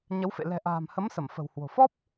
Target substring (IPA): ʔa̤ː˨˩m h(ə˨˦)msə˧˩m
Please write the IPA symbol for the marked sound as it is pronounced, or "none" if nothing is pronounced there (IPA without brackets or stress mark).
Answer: ə˨˦